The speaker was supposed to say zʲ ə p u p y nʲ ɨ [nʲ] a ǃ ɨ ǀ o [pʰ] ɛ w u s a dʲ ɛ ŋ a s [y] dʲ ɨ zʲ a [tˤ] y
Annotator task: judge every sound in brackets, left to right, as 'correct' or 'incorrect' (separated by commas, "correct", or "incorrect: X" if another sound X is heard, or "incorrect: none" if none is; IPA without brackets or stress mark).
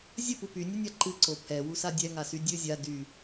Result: correct, correct, correct, incorrect: d